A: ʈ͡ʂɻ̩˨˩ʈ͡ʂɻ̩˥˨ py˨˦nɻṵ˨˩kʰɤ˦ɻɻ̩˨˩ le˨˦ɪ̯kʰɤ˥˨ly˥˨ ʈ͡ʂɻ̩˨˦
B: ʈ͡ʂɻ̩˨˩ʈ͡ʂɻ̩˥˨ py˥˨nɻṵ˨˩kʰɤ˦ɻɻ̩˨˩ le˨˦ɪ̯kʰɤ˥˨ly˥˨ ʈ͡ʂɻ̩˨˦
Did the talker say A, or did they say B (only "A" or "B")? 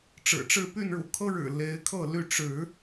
B